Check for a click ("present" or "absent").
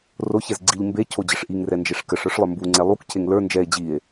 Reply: present